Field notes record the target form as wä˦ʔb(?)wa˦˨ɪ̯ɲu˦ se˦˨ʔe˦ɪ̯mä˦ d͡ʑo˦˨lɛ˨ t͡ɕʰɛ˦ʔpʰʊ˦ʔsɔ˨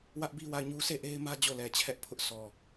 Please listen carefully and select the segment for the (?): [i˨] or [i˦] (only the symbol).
i˦